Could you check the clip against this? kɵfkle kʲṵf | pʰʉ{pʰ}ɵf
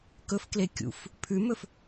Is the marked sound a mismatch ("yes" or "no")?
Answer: yes